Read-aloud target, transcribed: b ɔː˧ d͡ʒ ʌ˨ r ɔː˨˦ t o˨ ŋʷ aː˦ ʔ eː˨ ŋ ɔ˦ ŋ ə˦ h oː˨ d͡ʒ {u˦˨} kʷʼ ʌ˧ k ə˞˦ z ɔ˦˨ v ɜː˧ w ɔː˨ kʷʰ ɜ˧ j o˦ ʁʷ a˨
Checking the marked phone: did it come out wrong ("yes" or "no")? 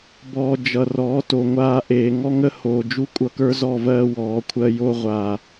yes